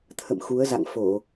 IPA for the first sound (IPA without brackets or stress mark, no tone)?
t̪ʰ